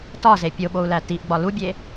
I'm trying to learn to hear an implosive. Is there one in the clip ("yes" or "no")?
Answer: yes